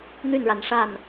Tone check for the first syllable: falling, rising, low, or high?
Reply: falling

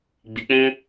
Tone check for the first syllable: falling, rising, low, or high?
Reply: low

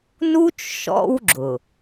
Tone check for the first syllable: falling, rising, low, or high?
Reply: high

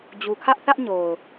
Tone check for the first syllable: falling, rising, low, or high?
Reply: low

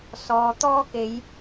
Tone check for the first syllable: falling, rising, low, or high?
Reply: low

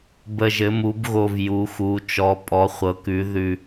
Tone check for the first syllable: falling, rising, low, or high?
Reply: low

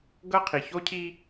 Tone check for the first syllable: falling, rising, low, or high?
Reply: high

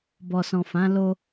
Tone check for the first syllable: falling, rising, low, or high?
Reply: low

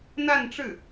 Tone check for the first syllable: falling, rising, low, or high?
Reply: falling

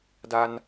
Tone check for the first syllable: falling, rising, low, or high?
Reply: low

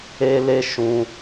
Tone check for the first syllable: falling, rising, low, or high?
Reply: high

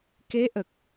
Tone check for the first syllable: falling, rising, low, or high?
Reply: rising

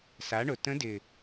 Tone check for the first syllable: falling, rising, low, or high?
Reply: rising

